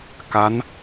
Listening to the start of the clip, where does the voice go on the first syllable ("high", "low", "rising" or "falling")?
rising